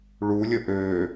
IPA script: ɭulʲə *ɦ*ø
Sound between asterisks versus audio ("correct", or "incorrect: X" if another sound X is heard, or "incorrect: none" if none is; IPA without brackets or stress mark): incorrect: ʔ